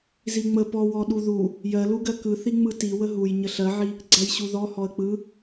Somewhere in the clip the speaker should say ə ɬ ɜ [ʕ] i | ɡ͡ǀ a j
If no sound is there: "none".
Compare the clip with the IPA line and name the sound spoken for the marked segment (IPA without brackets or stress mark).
ʕ